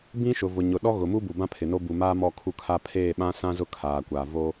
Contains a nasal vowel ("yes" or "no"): yes